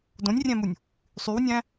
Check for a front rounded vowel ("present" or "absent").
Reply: present